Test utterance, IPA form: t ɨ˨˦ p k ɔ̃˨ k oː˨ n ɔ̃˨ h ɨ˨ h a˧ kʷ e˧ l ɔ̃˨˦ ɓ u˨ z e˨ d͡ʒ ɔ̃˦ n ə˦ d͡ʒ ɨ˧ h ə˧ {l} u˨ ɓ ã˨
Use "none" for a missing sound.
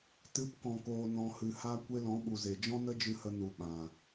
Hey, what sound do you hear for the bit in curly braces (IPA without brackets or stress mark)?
n